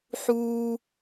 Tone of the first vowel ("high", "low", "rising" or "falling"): high